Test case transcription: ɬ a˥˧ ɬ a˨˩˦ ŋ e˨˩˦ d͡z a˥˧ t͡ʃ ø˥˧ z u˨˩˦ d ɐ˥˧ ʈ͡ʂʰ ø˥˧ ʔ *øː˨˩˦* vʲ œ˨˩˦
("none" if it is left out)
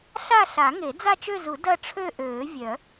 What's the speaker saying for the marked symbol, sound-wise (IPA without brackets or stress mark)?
øː˨˩˦